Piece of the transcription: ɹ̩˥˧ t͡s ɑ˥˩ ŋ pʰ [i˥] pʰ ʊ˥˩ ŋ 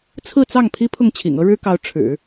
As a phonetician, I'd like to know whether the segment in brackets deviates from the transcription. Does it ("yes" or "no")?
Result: no